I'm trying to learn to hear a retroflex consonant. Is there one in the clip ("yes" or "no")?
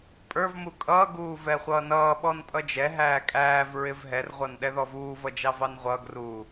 no